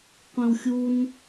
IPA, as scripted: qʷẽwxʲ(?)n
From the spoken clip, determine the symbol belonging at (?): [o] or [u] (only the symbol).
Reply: u